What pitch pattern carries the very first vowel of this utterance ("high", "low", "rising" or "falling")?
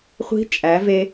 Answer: rising